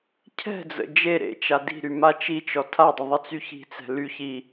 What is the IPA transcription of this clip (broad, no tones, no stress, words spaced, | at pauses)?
cʰɛ̤d͡zə̰ d͡ʒe ɾḛt͡ʃa di̤ɾy mat͡ʃit͡ʃɔ tʰadˤə ðˤət͡syçi̤t͡sɛ̤ ly çi